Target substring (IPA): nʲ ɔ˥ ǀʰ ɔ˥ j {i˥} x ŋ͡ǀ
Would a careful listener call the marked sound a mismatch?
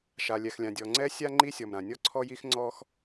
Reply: no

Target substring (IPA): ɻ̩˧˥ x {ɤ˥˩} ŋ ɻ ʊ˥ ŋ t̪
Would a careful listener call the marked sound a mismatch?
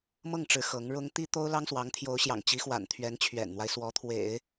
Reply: yes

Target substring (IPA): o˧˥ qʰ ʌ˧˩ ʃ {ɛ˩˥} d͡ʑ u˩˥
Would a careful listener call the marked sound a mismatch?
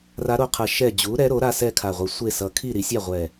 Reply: yes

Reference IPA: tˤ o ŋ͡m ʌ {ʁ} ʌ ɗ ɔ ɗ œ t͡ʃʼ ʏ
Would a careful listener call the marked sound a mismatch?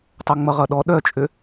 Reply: no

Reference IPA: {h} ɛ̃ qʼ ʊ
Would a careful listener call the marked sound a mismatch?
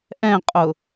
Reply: yes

